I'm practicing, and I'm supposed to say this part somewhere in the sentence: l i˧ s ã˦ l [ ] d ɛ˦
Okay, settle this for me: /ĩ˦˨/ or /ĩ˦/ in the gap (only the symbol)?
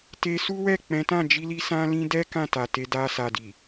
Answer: ĩ˦